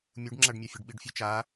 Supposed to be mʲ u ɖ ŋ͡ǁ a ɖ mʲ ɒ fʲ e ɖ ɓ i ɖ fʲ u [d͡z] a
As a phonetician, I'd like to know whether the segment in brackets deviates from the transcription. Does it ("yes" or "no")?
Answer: yes